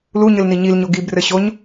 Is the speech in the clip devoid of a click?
yes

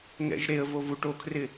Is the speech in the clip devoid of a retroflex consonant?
no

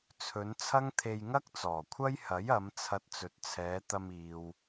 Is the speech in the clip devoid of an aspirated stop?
no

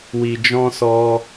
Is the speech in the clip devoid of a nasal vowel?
no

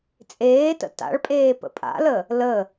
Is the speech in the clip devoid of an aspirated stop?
yes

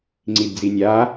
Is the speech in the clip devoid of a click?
no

